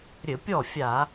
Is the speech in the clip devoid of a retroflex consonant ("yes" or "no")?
yes